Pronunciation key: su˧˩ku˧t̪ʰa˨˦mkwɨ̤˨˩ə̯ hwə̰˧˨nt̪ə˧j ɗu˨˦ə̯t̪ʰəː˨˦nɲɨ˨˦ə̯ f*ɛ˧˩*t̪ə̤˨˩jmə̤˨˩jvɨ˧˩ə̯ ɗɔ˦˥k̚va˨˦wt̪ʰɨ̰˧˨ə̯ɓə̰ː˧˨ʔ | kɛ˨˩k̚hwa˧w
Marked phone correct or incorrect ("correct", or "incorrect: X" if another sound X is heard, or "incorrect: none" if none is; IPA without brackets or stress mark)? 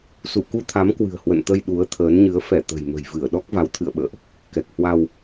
correct